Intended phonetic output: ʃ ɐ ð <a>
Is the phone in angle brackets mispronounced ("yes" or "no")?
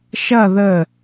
yes